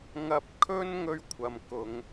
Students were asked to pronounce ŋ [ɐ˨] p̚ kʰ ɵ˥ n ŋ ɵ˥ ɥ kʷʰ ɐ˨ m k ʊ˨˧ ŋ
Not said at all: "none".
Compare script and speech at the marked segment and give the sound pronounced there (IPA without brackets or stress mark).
ɐ˧